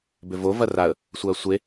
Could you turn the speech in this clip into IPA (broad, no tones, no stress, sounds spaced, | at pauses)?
b ʏ v o v ɐ r a ə̯ | sʷ ɐː sʷ e